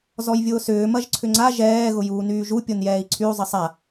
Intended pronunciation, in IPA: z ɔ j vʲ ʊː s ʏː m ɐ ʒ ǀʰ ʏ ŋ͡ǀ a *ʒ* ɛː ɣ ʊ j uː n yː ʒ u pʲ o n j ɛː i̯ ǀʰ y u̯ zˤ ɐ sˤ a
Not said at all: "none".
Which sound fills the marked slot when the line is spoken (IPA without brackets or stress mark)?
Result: ʒ